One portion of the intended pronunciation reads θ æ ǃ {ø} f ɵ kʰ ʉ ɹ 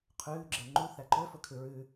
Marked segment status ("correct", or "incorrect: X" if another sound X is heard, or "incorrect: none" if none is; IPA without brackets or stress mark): correct